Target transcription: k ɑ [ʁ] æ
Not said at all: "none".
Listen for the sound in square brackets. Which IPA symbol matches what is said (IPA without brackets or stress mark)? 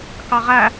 ʁ